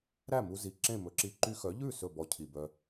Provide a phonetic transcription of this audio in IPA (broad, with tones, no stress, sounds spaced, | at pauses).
ɾ æ˥˩ m u˧ z i˩ ǁ ẽ˥˩ m ɵ˩˥ ǁ i˧ ǃ y˧ x œ˩˥ ʎ ʉ˥˩ s ɵ˥˩ b ɔ˧ cʰ i˩ b œ˧